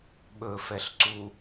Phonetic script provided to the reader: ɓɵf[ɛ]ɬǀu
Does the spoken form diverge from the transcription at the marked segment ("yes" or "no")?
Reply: no